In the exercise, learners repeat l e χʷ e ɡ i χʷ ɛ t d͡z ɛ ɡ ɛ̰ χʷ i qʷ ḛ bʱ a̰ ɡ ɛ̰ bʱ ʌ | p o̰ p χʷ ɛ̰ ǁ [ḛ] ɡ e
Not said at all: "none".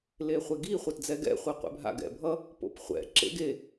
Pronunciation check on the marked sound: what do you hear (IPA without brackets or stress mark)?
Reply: ḛ